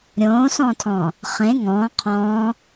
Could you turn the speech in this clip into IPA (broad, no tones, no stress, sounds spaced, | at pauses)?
ɾʲ õː s ɔ̃ː tʰ ɔ̃ː | χ ẽ ŋ ɔ̃ː qʰ ɔ̃ː